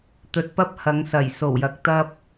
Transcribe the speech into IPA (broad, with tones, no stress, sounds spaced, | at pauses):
t̪ ɵ˨˥ t̚ p ɐ˥ p̚ h ɐ˨˧ ŋ s ɐ˨˩ j s o˨˩ w j ɐ˨ k̚ t̪ ɐ˥ p̚